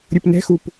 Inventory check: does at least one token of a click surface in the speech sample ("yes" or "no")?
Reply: no